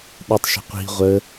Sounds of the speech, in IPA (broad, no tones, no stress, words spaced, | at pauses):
ɗɪtˤʃə̤ qʷi̤ ʁʷə